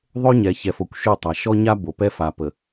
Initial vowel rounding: rounded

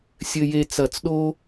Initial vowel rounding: unrounded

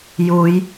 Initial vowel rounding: rounded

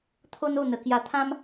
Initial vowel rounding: rounded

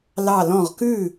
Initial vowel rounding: unrounded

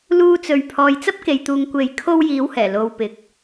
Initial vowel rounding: rounded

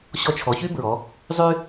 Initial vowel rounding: rounded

